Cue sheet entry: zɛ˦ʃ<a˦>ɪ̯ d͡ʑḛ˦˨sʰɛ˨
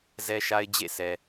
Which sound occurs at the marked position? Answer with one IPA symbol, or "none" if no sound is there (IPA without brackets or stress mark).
a˦